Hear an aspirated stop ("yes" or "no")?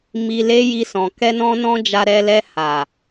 no